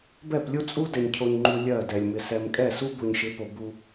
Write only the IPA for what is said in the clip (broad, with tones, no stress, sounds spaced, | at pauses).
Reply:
b ɛ˦˨ p lʲ u˦ t͡sʼ u˦ d ɛ˨ ɲ cʰ o˨ ɲ ŋ͡ǃ u˨ lʲ ɜ˦˨ d ɛ˨ lʲ m ɪ˨ s ɛ˨ m kʼ ɛ˦˨ s u˦ b u˨ ɲ ʃ ɪ˨˦ p o˨ b u˦